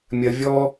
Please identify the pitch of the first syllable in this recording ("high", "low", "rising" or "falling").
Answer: low